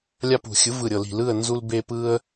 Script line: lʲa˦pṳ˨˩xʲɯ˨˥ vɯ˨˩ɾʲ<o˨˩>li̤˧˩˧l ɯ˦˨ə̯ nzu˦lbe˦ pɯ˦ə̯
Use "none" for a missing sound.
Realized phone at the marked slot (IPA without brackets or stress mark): ɤ˨˩